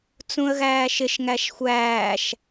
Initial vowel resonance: nasal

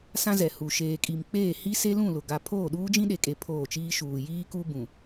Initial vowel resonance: nasal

